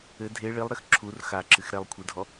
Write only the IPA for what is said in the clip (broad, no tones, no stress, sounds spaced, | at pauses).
ɘ dʱ e ɭ i lˠ ɾ ɘ x ǁʰ u r x a ǁ ɨ x ɾ ɛ lˠ kʷʰ ɨ dʱ ɔ